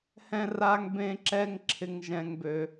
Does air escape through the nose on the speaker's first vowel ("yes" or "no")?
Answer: yes